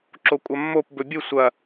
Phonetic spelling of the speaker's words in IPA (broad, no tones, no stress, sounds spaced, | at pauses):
ǁ o kʷʼ ɐ mː o p b ɵ bʲ ɨ sʷ ɐ